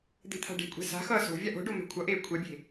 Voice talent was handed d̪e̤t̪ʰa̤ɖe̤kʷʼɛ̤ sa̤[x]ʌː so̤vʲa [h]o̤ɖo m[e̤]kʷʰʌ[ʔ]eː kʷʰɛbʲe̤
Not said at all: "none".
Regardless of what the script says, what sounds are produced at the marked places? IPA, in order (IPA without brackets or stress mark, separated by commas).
x, ʔ, ɛ̤, ʔ